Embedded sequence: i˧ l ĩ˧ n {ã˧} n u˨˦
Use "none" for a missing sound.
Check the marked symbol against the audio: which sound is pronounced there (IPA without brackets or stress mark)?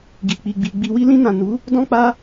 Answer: ã˨